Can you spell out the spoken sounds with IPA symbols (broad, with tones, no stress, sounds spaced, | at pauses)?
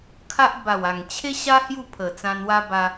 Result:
kʰ a˦ ʔ b a˨˩ w a˨˩ ŋ t͡ɕʰ e˦ ɕ a˦ h j u˥˧ pʰ ə˨˩ t͡s ã˧ n w a˦ b a˧